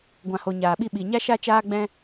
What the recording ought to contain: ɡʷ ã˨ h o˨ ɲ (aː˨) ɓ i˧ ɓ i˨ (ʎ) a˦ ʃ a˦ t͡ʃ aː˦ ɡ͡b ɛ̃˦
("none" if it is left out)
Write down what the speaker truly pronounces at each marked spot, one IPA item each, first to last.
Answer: aː˨, ɲ

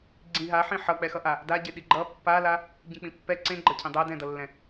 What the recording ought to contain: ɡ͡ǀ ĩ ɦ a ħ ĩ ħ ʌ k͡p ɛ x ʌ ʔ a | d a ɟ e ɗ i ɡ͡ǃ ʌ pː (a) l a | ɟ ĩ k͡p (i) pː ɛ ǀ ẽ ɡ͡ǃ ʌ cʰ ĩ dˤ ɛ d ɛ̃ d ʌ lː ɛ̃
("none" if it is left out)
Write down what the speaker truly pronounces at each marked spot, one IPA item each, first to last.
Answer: a, ĩ

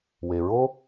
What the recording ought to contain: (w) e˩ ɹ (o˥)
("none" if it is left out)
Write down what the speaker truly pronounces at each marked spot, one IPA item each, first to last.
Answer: w, o˥

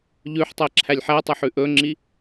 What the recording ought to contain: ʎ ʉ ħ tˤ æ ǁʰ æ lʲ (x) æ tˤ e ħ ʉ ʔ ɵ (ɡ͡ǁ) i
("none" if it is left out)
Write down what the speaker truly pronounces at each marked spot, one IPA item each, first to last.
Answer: ħ, ŋ͡ǁ

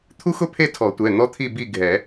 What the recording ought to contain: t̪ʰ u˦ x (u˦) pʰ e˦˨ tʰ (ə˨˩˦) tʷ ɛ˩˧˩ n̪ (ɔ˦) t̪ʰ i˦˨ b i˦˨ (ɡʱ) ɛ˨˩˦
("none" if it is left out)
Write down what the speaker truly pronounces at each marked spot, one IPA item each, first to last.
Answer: ʊ˦, ɔ˨˩˦, ɔ˦, ɡʱ

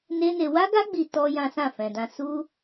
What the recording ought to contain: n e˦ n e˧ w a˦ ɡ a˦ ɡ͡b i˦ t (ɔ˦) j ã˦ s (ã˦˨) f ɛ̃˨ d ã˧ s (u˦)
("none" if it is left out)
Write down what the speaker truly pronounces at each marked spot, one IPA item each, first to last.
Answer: ɔ˦, ã˦˨, u˦

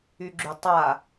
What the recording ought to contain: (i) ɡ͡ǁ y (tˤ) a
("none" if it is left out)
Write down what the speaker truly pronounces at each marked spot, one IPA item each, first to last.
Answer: y, tˤ

